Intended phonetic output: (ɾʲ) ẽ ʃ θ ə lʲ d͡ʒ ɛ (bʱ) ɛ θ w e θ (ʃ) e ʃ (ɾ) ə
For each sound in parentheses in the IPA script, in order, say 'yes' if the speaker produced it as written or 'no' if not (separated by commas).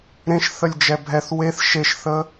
no, yes, yes, no